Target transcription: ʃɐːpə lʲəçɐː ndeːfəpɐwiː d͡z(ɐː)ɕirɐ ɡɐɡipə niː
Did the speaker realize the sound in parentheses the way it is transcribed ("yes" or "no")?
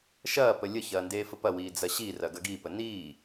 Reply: no